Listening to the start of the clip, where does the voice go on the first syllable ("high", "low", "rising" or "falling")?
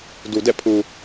low